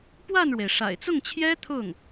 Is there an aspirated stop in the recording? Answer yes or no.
yes